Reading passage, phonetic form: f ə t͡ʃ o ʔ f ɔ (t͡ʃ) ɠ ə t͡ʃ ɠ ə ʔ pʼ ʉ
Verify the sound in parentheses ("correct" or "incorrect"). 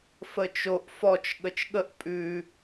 correct